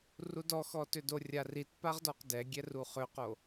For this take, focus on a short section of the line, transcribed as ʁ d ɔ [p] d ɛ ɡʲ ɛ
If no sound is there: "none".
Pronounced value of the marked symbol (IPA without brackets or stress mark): q